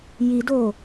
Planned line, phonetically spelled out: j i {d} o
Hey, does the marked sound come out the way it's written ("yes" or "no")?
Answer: yes